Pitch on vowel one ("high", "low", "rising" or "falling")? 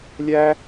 high